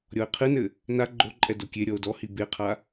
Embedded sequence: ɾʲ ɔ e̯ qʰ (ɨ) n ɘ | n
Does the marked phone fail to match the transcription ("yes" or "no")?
no